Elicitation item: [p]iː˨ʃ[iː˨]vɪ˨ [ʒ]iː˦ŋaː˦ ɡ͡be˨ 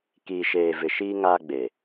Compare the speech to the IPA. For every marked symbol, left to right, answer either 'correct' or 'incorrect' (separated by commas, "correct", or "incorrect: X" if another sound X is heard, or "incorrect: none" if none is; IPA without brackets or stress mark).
incorrect: k, incorrect: eː˨, incorrect: ʃ